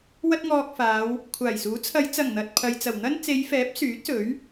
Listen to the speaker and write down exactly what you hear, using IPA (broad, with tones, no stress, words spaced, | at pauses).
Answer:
wɐ˧t̚ŋɔː˨k̚ faː˨˧w | kʷʰaː˨˩jsuː˨˥ t͡sʰɐ˨˧jt͡sɐ˨˩ŋ n̪ɐ˨t̚ pʰɐ˨jt͡sɐ˨˩wn̪ɐ˥n t͡se˨˧jfɛː˨˥p̚ syː˨˥t̚sɵ˨˥ɥ